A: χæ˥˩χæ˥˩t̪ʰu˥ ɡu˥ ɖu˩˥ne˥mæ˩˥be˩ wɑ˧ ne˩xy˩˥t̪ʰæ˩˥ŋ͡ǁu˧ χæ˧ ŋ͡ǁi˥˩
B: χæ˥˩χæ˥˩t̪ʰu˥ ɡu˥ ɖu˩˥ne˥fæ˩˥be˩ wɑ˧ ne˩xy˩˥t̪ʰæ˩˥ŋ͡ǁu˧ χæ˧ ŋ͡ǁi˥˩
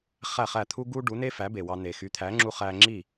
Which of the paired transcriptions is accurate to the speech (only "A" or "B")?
B